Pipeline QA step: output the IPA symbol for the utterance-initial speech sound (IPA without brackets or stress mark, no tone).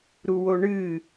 ɾ